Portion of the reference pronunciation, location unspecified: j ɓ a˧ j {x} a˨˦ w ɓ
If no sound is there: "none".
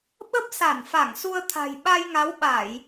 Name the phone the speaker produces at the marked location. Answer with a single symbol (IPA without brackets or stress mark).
ŋ